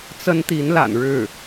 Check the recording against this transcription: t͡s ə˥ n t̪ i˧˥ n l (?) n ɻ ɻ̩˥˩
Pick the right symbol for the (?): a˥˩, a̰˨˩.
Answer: a̰˨˩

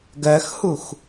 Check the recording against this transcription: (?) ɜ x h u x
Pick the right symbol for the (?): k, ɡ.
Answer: ɡ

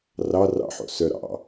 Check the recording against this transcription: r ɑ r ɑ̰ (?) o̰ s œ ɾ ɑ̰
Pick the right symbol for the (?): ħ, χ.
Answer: ħ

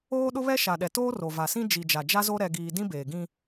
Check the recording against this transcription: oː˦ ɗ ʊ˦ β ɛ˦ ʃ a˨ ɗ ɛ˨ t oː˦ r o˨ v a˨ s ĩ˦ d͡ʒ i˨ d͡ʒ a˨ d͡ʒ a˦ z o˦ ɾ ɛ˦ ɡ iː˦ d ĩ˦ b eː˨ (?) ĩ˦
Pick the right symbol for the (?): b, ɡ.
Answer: ɡ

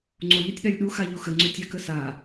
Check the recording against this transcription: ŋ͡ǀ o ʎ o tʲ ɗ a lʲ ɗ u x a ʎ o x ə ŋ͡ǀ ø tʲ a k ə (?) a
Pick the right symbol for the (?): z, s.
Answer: s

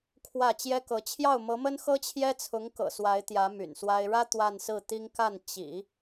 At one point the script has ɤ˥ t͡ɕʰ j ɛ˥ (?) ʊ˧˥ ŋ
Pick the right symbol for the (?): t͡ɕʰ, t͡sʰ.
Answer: t͡sʰ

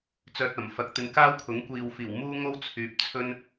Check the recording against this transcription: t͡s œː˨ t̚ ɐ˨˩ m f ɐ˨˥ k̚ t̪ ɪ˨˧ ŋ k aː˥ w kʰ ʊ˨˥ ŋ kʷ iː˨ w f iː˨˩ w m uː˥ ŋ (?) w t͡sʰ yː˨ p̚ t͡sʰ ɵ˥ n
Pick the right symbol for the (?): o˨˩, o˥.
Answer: o˥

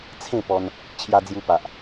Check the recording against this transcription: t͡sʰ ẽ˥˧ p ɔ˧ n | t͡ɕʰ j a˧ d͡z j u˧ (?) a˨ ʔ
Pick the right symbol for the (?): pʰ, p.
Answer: p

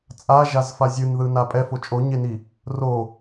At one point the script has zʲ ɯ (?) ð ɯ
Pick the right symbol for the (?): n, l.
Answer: n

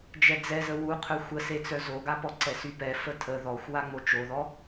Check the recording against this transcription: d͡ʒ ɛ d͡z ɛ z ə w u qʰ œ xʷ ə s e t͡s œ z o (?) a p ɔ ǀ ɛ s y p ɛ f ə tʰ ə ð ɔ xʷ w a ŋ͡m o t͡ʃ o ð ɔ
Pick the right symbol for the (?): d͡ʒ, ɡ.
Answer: ɡ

